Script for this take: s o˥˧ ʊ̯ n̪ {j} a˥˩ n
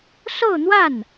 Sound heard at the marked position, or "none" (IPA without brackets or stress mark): w